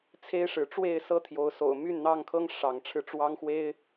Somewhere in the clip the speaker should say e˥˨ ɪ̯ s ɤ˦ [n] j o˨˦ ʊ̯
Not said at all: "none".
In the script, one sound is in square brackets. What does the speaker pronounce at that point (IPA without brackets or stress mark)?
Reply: t̪ʰ